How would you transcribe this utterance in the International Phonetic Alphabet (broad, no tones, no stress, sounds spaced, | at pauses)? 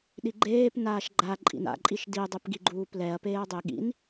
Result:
ɗ i ɡ͡ǃ eː p n aː ʃ ɡ͡ǃ a ǃʼ ḭ n a̰ ǃʼ i ʃ d i dˤ e p ɡ i ɡ͡ǃ uː p l ɛ ɐ̯ p eː ɐ̯ dˤ e ɠ ḭ n